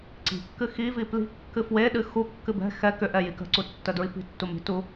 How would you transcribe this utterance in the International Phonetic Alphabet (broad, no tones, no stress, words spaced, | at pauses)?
ǀi̤kːɨ xivi pli̤ kːɨfweɗɨ xukːɨ bɛ̤ xɛ kʏʔɛ jikə̤ǀu tːədɹipi̤tːu mi̤tu